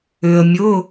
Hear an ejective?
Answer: no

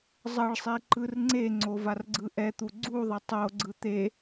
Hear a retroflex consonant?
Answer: yes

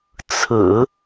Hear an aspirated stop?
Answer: yes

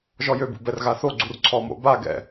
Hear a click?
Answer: yes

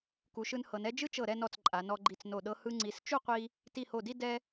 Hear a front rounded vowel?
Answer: no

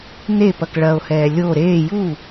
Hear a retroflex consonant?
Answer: yes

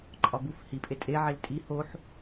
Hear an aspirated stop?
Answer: no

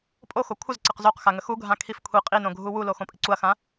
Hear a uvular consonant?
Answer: yes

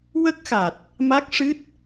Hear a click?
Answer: no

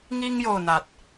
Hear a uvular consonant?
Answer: no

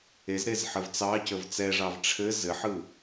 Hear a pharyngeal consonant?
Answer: yes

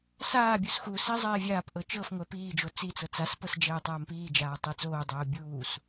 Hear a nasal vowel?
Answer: no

